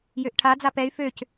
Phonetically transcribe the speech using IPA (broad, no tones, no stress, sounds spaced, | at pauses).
j ø ʔ ʈʰ a d͡z a p ɛ y̯ f ø c